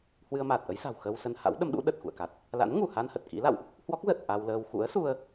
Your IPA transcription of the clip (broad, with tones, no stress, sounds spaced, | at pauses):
h w ɨ˧ ə̯ m aː˨˩ t̚ ʔ ə˨˦ j s a̤˨˩ w x ə˧ w s ə˧ n h a̰˧˥ w ɗ ə˨˦ m ɗ ṵ˧˥ ɗ ə˨˩ t̚ x ṵ˧˨ ə̯ k a˨˩ t̚ | l a̰˧˥ n ŋ u˧˩ h a˧ n h ə˨˩ t̚ k ḭ˧˥ l a̰˧˨ w ʔ | h w ɔ˦˥ k̚ z ə˨˩ t̚ ʔ a˧ w l əː˧ w x ṵ˧˥ ə̯ s u˧ ə̯